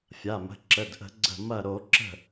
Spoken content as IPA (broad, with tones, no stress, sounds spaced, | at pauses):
fʲ a˩˧˩ m ə̤˩˧˩ ǁ ə˩˧˩ d ʔ ə̤˧˩˧ ɡ͡ǀ ə̤˧˩ m ɐ˧˩ ɾ o˧˩˧ ǁ ə̤˧˩